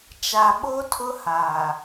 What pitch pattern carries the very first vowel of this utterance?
low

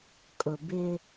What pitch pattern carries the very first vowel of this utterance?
low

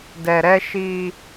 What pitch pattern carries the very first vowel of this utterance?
low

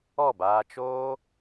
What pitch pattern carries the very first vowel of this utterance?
falling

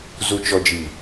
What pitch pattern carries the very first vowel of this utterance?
low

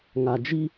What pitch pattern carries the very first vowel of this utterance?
low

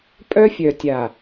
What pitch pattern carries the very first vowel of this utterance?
high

